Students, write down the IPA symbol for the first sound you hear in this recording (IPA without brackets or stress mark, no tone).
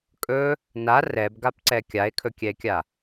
kʼ